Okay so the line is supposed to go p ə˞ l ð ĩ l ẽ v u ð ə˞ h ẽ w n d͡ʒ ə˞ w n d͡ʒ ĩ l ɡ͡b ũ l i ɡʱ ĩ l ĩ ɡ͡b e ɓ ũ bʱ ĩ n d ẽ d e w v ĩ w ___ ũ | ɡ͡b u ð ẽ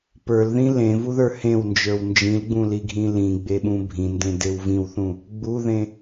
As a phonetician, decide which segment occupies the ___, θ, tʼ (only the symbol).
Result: θ